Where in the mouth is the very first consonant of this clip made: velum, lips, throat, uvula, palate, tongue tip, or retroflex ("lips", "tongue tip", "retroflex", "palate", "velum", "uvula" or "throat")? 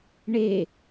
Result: retroflex